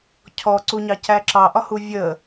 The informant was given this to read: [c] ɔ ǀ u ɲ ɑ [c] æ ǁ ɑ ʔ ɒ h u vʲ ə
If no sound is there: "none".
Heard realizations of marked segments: cʰ, c

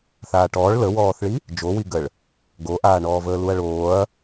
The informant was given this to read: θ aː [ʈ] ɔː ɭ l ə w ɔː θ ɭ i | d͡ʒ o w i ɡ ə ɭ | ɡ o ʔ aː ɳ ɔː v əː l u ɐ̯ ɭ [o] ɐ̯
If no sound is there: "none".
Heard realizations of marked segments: ʈ, oː

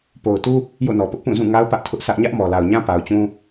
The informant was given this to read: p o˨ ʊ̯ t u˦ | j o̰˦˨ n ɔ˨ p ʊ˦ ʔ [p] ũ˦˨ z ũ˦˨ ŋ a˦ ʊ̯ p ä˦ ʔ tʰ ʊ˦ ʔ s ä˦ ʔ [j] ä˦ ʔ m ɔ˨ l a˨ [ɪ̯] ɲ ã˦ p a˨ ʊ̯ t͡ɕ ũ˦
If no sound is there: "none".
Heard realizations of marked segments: p, ɲ, ʊ̯

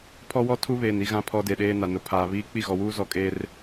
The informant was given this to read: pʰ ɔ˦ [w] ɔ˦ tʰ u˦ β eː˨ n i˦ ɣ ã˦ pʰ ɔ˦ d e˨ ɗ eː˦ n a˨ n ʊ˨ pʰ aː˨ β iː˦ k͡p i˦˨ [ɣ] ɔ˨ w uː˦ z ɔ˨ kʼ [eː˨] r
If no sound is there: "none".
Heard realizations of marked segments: w, ɣ, eː˦

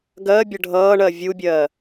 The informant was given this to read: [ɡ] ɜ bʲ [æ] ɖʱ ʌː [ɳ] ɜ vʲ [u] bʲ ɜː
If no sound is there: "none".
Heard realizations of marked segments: ɡ, ə, ɳ, u

